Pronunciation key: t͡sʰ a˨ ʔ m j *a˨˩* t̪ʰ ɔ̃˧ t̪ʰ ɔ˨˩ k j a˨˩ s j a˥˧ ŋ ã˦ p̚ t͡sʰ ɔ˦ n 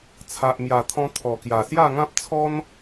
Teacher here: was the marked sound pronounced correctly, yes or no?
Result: yes